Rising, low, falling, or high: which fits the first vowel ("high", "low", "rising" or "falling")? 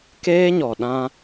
high